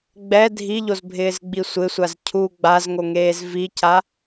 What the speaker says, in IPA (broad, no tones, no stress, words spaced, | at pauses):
ɡ͡bɛ dʱiʎozbʱɪːzɡ͡bi sʷɪsʷaz cʰu ɡ͡bazŋoŋeːz vica